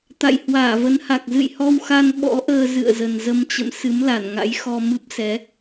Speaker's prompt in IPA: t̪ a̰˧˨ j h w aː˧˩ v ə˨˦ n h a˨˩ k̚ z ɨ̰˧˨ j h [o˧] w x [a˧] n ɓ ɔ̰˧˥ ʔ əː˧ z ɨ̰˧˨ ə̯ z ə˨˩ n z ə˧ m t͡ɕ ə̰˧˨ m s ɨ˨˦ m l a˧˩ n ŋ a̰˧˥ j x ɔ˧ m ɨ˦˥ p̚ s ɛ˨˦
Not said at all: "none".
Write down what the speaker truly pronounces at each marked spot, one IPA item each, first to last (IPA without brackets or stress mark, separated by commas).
ɔ˧, a˧